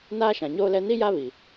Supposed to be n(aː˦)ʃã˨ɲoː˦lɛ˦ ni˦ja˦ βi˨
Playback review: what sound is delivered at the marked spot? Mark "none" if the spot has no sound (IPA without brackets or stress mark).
aː˦